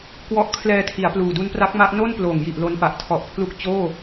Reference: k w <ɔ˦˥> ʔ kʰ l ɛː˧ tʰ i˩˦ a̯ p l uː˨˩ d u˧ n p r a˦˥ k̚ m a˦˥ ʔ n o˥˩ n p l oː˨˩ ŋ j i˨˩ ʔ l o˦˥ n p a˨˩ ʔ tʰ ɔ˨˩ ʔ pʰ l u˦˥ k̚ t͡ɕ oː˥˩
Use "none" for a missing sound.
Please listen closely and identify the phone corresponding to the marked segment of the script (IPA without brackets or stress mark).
ɔ˦˥